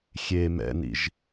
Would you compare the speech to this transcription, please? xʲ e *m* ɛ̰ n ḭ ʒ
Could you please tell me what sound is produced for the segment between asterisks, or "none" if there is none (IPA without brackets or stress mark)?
m